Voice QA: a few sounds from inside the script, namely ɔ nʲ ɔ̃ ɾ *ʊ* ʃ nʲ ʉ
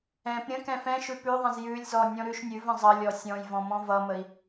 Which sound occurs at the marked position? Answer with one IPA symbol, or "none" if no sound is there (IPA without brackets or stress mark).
ʉ